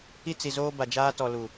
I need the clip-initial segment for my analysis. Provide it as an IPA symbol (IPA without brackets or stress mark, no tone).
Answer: i